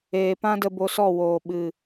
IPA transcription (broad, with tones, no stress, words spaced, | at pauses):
eː˨pã˦də˧ bo˧sɔ˦˨woː˨ɓɨ˨